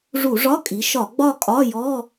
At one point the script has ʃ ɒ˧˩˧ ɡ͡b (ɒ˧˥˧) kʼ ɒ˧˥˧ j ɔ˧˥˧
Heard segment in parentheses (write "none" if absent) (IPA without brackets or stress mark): ɒ˥˧